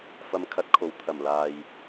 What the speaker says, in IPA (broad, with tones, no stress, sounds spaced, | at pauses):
f ɐ˧ m kʰ ɐ˧ t̚ kʰ o˨ w t̪ʰ ɐ˨˩ m l aː˨ j